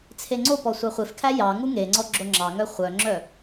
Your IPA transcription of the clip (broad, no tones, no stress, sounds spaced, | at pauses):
t͡sʰ e ŋ͡ǀ o p ɔ sʷ ɑ χʷ e f kʰ æ j ɑ ŋ u ŋ e ŋ͡ǀ ɔ ɡ͡ǁ o ŋ͡ǁ ɑ ŋ œ χʷ œ ŋ͡ǁ œ